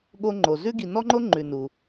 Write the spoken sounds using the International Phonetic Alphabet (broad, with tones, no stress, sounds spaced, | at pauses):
ɠ o˦ ŋ͡ǃ o˩ z ʉ˦ ɡ i˨ n ɔ˥ ŋ͡ǃ o˥ ŋ͡ǃ ʉ˨ n u˩